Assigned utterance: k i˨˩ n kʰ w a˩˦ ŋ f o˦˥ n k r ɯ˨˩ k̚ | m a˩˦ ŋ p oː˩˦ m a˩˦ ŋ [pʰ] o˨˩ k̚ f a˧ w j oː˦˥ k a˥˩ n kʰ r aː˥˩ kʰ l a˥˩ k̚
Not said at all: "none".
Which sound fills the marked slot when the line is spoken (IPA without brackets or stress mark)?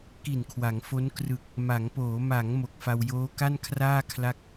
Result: m